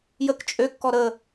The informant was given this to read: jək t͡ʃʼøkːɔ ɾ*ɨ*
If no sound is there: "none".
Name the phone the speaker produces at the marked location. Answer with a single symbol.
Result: ə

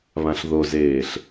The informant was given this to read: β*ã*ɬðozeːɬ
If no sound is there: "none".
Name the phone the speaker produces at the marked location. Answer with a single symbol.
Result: ã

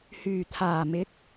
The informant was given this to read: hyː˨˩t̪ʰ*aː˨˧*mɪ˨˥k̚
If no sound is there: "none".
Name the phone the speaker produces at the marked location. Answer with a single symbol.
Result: aː˨˩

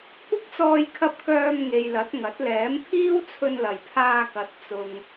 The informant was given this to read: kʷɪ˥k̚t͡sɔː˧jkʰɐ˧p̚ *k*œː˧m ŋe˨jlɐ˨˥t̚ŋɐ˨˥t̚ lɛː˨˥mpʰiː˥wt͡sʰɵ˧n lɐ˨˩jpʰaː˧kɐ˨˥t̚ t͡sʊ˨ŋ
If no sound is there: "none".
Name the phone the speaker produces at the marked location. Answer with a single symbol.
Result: k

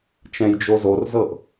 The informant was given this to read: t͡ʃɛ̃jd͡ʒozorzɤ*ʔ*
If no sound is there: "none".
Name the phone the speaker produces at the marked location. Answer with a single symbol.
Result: ʔ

